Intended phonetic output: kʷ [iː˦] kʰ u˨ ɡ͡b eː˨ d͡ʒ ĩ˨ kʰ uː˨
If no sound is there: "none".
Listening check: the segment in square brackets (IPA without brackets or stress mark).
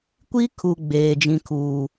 i˦